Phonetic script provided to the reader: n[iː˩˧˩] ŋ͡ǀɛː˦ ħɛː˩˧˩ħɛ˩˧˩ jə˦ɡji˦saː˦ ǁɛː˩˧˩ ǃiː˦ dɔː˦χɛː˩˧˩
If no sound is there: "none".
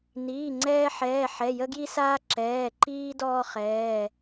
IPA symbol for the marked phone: iː˩˧˩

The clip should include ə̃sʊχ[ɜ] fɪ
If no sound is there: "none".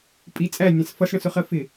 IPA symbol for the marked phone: ɜ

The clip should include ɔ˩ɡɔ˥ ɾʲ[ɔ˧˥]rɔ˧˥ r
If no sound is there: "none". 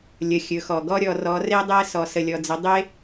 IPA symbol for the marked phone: ɔ˧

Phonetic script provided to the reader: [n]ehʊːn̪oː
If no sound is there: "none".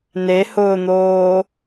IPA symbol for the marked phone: n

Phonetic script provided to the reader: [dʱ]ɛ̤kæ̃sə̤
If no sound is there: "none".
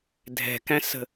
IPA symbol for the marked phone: dʱ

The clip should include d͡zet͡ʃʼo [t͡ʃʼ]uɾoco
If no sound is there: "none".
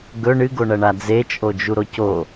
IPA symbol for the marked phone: d͡ʒ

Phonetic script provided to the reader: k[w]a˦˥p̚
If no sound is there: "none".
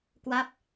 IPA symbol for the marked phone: w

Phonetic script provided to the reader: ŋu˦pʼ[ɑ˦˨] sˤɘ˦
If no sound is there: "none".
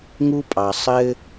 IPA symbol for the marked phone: ɑ˨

